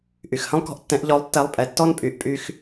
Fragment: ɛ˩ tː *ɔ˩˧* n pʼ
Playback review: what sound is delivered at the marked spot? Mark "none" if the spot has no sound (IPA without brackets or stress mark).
ɔ˥